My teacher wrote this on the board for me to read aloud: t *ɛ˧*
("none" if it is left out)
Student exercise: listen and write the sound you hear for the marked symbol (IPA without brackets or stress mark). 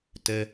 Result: ɛ˧